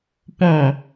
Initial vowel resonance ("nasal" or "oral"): nasal